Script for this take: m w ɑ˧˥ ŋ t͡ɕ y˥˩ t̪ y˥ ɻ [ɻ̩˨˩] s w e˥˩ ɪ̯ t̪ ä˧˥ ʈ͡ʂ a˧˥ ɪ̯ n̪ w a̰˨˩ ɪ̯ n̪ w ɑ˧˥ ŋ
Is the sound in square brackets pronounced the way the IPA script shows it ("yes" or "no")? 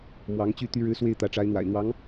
no